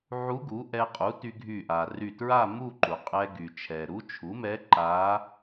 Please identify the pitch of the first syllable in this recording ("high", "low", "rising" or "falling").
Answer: rising